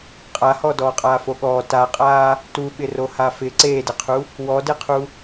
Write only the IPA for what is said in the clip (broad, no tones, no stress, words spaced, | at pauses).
qʼahɔ dɔːqʼaːfoɠɔː taqʼaː | tuɓɪro hafɪ ǀeːdɪqʰu | wɔdeqʰu